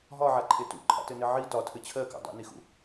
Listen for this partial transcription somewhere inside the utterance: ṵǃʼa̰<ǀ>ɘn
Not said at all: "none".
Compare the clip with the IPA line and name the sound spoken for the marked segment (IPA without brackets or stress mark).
t